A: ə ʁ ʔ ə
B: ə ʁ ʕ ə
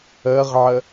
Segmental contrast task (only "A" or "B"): B